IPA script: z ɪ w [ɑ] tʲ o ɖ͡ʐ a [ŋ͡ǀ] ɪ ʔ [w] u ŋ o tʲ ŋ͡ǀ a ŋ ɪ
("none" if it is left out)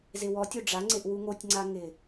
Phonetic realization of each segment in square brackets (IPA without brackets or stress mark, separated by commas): ɔ, ŋ͡ǀ, w